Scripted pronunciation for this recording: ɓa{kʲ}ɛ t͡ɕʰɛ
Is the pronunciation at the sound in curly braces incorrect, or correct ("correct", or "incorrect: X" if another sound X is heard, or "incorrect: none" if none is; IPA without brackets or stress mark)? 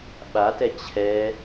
incorrect: t